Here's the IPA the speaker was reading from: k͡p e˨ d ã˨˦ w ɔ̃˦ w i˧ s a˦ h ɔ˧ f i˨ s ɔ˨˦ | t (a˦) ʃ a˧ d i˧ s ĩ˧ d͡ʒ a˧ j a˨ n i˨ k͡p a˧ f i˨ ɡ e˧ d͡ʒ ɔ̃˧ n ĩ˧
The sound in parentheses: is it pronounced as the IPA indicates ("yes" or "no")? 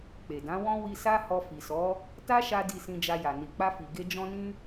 yes